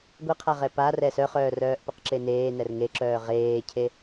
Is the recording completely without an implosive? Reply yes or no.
yes